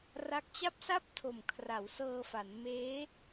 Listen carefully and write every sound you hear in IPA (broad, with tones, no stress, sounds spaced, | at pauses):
r a˦˥ k̚ t͡ɕ a˥˩ p̚ s a˥˩ p̚ tʰ o˨˩ m kʰ r a˩˦ w s ɤː˧ f a˩˦ n m eː˦˥